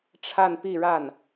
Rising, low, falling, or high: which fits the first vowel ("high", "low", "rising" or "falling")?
falling